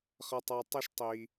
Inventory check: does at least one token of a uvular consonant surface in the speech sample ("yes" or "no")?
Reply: yes